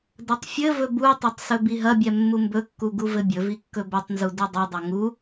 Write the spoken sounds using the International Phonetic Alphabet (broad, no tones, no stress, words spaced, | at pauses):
dɐtˤfʲɘvɵ butˤɐtˤ sɵbiɦɐbʲɛ mːumbɵkːu ɡuvɘbʲɵvi kːɵbɵtˤnzu didˤɘdˤɐ ŋu